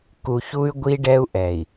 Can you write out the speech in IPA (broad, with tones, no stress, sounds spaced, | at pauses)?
k u˨ ç u˦ y̯ ɡʷ i˦ ɖ ɛ˦ u̯ ʔ ɛ˨ i̯